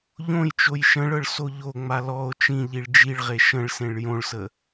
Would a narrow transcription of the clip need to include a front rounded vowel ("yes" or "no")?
no